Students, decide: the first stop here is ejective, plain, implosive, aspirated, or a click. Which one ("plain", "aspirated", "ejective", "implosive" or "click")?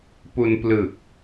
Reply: plain